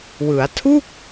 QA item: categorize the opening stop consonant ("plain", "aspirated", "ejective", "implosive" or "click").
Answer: aspirated